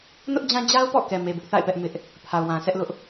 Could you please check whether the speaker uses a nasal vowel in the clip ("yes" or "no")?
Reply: yes